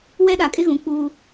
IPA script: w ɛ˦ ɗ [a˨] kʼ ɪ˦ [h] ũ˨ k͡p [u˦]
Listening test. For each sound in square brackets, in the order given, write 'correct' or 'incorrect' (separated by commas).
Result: correct, incorrect, incorrect